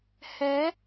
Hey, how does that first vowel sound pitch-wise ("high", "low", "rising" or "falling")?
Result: rising